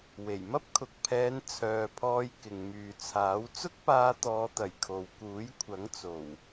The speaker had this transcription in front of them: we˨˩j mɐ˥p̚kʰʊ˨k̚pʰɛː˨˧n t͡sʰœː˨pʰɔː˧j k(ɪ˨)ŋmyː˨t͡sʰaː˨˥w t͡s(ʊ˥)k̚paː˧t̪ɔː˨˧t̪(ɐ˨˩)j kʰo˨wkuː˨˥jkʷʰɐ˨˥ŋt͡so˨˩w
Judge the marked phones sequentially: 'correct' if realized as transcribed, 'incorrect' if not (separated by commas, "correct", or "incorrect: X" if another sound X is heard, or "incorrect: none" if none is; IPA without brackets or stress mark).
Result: correct, correct, correct